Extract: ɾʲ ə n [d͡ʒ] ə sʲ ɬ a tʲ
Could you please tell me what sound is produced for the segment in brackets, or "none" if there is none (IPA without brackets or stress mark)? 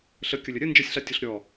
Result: d͡ʒ